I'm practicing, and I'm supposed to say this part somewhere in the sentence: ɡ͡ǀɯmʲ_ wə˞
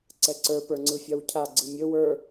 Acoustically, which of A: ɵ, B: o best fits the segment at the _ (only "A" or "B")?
A